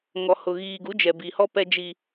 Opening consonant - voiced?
yes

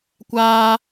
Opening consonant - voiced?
no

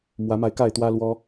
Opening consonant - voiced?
yes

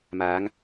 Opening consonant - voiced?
yes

